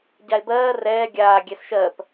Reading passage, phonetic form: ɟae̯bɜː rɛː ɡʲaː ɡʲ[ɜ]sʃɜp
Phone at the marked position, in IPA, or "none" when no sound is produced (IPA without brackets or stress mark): ɛ